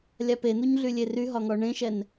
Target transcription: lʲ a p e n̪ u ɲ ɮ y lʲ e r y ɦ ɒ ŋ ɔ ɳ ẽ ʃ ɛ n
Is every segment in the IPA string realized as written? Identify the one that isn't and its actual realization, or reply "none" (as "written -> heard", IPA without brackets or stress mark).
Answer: none